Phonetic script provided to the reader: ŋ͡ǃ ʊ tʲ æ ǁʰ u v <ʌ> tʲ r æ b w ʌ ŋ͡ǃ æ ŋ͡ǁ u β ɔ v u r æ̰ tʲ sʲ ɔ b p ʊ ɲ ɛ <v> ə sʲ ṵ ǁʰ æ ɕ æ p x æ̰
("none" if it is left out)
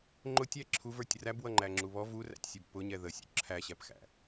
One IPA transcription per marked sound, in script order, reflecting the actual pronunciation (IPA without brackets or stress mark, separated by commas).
ə˞, ð